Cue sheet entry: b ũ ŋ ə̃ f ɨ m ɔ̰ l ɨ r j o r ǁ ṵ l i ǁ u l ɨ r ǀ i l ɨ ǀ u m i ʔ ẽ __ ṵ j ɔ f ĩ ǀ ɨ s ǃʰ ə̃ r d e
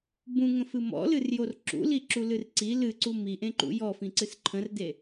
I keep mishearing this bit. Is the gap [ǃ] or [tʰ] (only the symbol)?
ǃ